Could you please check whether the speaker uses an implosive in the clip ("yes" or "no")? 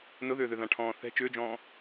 no